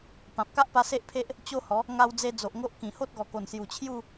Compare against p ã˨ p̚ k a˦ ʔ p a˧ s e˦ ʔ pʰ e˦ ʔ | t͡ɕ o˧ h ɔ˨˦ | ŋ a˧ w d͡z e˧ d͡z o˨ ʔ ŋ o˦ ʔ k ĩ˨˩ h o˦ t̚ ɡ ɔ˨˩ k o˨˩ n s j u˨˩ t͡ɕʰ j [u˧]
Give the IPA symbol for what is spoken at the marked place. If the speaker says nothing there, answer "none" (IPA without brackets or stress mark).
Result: u˥˧